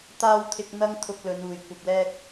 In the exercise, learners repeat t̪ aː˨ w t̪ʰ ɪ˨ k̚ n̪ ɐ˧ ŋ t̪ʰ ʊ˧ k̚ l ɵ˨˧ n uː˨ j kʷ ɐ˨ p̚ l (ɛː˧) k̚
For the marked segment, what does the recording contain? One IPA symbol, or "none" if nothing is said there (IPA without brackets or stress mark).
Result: ɛː˧